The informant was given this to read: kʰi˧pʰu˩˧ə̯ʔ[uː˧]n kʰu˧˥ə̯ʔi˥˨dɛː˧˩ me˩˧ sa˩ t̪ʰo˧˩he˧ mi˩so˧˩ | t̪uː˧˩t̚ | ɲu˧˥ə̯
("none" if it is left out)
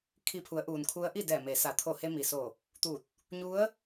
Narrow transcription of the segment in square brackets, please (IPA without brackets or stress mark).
uː˩